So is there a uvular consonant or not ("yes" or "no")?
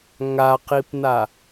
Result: yes